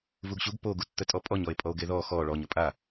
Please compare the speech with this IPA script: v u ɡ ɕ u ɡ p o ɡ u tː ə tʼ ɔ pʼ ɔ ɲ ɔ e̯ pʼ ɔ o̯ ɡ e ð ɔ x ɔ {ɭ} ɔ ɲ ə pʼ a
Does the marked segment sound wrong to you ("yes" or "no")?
no